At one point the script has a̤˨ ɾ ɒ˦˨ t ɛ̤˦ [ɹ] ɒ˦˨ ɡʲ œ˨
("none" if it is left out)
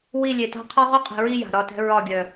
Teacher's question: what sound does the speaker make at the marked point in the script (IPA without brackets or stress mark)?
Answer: ɹ